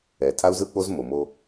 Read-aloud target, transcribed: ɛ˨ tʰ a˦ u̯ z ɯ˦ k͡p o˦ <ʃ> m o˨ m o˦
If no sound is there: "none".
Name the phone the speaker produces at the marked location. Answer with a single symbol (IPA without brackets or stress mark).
z